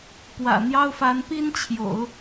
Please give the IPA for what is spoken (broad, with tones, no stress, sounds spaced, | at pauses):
p w ä̰˨˩ n̪ j ɑ˥ ʊ̯ f a˧˥ n p i˥ n t͡ɕʰ j o̰˨˩˦ ʊ̯